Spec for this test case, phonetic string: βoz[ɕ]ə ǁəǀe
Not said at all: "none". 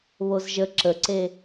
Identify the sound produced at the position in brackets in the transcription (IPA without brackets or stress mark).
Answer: ʒ